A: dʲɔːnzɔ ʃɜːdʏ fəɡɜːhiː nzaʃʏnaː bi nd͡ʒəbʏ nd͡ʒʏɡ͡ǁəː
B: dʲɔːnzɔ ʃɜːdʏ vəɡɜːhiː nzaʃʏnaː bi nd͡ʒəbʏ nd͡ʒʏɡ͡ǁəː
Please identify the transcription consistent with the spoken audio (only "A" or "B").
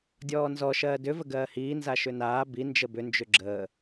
B